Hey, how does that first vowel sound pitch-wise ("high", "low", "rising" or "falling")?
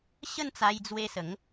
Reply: falling